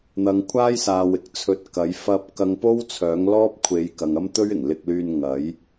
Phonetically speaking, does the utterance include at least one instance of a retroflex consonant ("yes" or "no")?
no